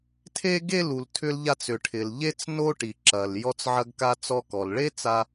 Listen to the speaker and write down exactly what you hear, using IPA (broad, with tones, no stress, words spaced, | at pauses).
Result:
tʰe˥ɡe˥ lu˩ltʰʏ˧lʎa˧t͡sʏ˩ ʈʰɪ˩lʎe˥t͡s no˥ʈi˩ǁɐ˩l jɔ˧t͡sʕɐ˧ɡka˧ t͡sɔ˧kɔ˩l ɭe˥t͡sa˧